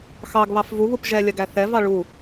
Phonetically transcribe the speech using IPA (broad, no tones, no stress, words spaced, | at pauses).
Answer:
xɑɡ βɑfvuβup ʒɛlʲɜɡ æθɛvɑ ɭu